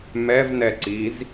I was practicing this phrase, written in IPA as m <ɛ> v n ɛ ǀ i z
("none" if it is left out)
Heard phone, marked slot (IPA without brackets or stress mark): ɛ